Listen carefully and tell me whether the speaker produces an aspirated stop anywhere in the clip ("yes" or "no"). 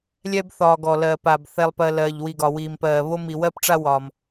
no